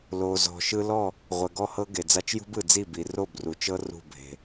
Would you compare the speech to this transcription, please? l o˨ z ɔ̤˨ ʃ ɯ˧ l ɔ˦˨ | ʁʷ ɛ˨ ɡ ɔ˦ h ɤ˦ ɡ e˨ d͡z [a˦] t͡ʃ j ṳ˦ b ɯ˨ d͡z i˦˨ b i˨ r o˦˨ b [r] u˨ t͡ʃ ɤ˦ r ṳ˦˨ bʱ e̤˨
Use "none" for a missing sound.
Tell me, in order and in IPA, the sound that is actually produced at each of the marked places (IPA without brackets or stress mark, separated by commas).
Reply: a˦, r